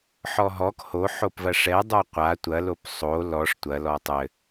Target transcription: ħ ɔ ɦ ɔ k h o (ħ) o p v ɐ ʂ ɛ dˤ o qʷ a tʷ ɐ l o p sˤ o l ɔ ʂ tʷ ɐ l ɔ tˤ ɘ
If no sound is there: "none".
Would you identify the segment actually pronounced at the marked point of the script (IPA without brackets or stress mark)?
ħ